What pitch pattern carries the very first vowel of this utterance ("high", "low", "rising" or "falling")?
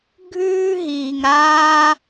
high